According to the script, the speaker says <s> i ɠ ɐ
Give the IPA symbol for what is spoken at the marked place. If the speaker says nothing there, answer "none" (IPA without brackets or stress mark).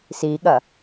s